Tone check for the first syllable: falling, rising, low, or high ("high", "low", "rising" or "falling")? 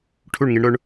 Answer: falling